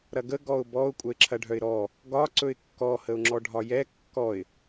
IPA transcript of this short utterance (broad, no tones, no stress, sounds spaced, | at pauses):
ɾ ɐ ɡ ə ɡ ɔ ʊ̯ b ɔ ʊ̯ kʷʼ œ ɪ̯ ǁʰ ɐ ɖʱ œ ɪ̯ ɾ ɔ | ɡ ɒ ǀ ɵ ɪ̯ kː ɔ h ə ʊ̯ ŋ͡ǁ ɔ ɖʱ ɒ j ɛ kː ɔ ɪ̯